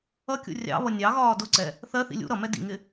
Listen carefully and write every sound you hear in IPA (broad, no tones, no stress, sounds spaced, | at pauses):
ʌ kʲ ṵ rʲ ɑ̰ β ʌ nʲ ɑ ɣ ɒː d ʊ ǀ ɛ | θ ɜ θ ḭ lʲ ṵ ɾ ʌ m ɛ d ḭ ŋ ɪ